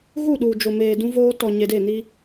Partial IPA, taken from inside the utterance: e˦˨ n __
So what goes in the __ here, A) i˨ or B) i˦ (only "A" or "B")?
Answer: B